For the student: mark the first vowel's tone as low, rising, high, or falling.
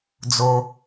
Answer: low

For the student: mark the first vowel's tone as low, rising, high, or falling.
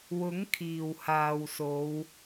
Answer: rising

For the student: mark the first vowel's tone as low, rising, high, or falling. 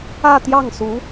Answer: falling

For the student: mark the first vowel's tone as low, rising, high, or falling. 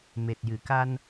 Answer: low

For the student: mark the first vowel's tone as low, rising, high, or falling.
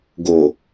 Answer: low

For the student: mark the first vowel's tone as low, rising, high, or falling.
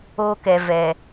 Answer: high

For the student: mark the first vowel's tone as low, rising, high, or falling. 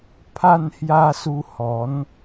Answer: falling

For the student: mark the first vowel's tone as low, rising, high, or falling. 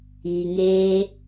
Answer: low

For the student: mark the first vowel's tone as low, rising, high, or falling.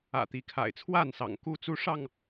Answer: low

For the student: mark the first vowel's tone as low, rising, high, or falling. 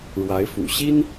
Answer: rising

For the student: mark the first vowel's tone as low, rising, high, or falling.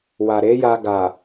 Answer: low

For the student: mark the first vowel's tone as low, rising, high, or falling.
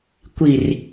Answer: low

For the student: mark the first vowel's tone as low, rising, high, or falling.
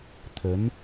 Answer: rising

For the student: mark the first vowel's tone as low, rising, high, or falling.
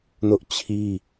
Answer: high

